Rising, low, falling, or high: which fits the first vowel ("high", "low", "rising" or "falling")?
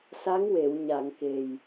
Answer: rising